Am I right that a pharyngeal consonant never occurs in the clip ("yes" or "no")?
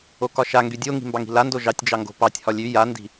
yes